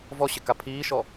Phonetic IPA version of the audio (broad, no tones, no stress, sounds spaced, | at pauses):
v ɔ ɕ ɪ k a pʰ iː ʃ ɔ